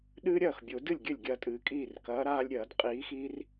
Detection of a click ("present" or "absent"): absent